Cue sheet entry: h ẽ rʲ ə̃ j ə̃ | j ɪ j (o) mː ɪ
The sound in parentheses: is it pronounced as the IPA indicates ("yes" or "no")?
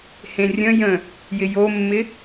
yes